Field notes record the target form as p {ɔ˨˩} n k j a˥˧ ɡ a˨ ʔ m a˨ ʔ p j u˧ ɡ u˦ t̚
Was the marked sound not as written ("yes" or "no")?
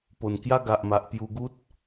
yes